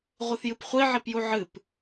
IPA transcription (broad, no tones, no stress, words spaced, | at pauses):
ʁʷɨθjɨpχʷi ʕipjuʕɨp